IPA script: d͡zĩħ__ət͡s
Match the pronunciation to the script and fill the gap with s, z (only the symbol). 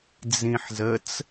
z